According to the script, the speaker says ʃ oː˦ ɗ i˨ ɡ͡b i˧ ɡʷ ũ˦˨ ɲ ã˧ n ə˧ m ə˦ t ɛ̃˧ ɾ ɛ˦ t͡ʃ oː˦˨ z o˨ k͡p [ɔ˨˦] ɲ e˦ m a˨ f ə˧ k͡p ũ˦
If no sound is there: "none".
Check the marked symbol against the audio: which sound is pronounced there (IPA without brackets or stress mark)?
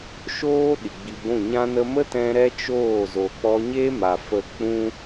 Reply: ɔ˧